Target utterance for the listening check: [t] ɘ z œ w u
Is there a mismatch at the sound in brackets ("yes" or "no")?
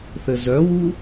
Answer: yes